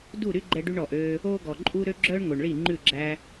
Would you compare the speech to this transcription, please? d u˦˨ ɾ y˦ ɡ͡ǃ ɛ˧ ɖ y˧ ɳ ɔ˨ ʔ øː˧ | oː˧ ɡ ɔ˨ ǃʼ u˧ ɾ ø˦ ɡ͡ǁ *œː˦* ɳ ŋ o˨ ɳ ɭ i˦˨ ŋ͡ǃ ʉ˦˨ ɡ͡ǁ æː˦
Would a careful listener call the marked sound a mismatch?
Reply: no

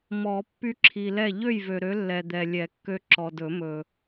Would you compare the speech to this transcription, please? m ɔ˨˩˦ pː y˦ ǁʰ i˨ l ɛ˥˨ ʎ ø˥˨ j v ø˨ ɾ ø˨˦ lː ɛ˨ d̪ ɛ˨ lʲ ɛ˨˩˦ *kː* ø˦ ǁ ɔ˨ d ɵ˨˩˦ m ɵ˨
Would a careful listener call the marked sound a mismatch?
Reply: no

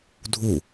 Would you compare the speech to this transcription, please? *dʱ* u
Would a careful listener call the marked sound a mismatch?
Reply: no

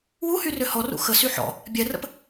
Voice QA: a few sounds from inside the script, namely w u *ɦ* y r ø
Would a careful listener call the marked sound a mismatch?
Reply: yes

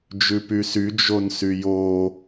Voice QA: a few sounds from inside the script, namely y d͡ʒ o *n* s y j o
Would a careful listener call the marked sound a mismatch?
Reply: no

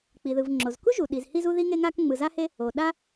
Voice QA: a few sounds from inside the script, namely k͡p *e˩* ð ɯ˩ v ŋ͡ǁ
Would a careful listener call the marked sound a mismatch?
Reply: yes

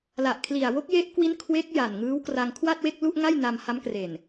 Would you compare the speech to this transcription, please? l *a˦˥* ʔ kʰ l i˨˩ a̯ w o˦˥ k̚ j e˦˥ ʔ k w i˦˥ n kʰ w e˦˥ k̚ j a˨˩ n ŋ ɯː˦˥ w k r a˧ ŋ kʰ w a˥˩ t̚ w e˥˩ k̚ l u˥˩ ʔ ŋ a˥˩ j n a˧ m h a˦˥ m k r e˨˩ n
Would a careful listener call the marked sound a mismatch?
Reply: yes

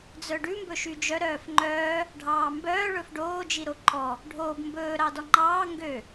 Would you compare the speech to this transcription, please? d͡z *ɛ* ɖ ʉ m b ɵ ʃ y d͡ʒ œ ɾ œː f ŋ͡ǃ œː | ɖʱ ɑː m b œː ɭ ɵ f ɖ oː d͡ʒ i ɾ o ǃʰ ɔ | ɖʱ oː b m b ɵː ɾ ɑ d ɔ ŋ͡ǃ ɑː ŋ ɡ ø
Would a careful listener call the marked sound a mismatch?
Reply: yes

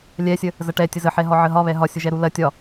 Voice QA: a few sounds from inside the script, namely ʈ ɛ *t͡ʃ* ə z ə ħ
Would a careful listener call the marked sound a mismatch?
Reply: yes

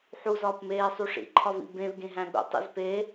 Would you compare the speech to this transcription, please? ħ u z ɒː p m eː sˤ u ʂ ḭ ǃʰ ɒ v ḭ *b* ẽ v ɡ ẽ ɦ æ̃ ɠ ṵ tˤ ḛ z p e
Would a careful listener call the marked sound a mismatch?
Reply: no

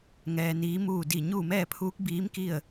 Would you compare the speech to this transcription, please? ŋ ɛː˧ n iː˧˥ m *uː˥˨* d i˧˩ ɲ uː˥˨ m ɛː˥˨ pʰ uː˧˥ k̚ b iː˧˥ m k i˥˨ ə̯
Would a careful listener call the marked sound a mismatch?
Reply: no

